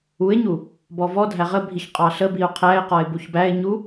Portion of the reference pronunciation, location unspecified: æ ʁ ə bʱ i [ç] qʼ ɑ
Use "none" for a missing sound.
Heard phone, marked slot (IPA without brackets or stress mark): ç